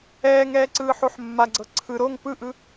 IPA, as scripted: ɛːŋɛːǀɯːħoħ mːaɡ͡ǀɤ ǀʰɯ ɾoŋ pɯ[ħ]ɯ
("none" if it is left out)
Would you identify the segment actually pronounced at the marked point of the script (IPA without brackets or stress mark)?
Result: ʔ